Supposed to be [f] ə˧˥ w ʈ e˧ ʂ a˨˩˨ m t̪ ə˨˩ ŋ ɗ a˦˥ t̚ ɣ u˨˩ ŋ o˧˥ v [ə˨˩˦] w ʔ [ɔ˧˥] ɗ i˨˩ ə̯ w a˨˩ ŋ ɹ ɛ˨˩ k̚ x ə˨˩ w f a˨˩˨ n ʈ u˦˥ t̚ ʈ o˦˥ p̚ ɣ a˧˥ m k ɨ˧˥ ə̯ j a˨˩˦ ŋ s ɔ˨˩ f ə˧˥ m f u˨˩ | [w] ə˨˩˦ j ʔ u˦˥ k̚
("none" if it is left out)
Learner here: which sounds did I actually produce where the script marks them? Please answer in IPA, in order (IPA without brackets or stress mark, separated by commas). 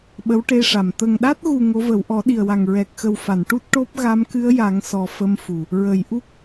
ɓ, ə˨˩˦, ɔ˨˩˦, ɹ